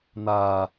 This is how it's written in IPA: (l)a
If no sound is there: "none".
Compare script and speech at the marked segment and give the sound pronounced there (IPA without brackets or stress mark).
n̪